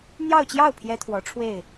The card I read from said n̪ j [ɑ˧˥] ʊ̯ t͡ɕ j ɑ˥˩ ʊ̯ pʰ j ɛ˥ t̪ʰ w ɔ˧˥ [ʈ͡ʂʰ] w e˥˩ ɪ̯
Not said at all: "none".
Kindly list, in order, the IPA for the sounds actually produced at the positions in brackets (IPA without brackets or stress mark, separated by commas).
ɑ˥˧, ʈ͡ʂʰ